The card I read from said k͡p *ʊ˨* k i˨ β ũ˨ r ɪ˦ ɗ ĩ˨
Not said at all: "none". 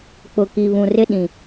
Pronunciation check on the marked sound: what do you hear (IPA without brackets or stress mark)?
ʊ˨